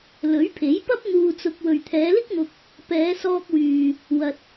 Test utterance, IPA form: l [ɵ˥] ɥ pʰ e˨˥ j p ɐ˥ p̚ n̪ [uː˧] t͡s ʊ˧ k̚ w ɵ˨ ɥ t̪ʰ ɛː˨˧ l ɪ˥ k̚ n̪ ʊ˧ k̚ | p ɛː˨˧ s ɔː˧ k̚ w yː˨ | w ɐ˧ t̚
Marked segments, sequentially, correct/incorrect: incorrect, correct

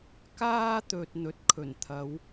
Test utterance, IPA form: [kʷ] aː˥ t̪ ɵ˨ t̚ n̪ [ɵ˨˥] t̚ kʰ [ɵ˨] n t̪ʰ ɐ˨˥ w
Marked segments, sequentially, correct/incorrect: incorrect, correct, incorrect

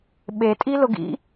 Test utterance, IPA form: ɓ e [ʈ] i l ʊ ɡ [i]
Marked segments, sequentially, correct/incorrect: incorrect, incorrect

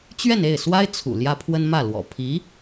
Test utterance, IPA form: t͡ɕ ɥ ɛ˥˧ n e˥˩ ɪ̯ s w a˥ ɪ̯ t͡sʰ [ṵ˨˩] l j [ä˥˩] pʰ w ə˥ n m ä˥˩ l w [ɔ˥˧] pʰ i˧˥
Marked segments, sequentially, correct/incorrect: correct, incorrect, incorrect

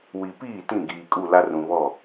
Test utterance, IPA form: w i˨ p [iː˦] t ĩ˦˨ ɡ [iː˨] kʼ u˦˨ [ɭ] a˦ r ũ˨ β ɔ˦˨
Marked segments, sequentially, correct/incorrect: incorrect, correct, incorrect

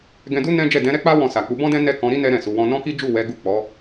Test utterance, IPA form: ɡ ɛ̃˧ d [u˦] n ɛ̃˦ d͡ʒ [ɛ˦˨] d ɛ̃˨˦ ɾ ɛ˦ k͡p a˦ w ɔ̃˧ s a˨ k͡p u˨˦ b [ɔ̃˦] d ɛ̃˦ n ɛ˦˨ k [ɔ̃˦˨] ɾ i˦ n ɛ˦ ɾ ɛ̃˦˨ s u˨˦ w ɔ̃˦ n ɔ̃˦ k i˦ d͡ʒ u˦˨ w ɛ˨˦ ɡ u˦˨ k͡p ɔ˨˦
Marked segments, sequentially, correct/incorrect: correct, correct, correct, incorrect

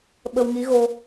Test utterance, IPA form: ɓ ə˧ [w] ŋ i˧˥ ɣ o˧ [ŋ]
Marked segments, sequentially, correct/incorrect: correct, incorrect

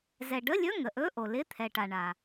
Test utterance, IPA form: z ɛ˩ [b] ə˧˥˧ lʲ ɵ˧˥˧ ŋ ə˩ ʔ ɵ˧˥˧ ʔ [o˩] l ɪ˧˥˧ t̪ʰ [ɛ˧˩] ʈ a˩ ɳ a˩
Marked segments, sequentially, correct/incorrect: incorrect, correct, incorrect

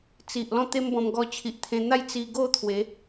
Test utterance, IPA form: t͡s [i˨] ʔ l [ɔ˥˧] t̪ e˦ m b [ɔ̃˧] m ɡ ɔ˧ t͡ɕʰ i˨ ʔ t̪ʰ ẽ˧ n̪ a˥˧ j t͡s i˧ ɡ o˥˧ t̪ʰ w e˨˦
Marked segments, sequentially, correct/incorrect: correct, incorrect, correct

